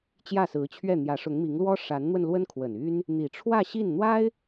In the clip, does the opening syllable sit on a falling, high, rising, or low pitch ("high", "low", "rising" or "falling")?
falling